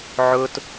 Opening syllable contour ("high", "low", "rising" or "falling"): high